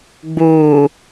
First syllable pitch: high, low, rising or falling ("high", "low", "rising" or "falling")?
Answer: low